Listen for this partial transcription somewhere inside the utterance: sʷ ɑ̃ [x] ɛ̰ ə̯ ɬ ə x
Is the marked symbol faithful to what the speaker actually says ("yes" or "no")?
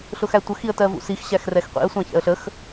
no